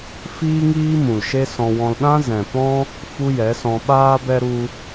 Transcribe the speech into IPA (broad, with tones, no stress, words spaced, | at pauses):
fiː˦ŋiː˦mũ˨l ʃe˦sɔ̃˧wɔ̃˧l ɗã˦zɛ̃˨pɔ̃˦ | fu˦jɛ˨˦sɔ̃˧ ɓaː˧bɛ˧ ɾu˧